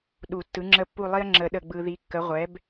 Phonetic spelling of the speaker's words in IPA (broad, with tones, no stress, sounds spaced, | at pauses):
ɗ u˨˩˦ tː ɯ˩˥ ŋ͡ǁ ə˦˨ pː u˦˨ lˠ i˦ ɐ̯ ŋ͡ǁ ə˨˩˦ ɗ ə˨ ɡ͡b ɯ˨ ð i˩˥ kː ə˩˥ ʁʷ ɛ˩˥ b